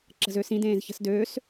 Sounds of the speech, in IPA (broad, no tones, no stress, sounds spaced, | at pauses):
ǁ ə̤ z ø s ĩ d ẽː z ç ə̤ s d øː s